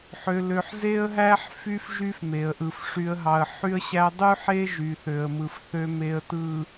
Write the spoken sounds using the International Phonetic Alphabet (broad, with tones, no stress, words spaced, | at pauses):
ħø˨lø˨ħ ze˦ə̯ɦæ˦ħ fy˦f ʒy˦fme˨ə̯ʔɯ˨f ʂy˨ə̯ɦɑ˨ə̯ ħy˦ə̯ɕæ˦ dˤy˦ħe˦ ʒy˨θø˨ə̯mɯ˨fθø˦ me˨ə̯tɯ˨